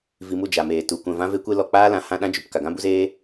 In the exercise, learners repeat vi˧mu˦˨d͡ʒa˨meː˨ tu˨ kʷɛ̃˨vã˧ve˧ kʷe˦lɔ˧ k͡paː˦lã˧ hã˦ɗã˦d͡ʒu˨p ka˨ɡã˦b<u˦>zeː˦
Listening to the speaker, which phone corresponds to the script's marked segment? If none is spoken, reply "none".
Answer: u˦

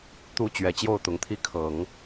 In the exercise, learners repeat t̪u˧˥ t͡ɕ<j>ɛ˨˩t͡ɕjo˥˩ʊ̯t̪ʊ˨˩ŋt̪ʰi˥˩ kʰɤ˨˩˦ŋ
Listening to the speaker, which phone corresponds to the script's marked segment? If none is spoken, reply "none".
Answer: ɥ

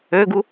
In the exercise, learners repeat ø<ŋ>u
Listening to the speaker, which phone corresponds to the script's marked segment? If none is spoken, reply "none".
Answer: ɡ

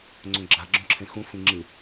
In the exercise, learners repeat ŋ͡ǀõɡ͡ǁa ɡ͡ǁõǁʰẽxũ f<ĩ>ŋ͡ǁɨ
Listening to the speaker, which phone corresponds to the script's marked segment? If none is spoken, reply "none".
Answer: ĩ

